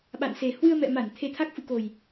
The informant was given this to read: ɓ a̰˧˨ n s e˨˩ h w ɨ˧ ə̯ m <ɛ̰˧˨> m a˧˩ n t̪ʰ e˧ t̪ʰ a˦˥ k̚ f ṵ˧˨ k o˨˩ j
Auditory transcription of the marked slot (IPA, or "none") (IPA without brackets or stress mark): ɛ̰˧˨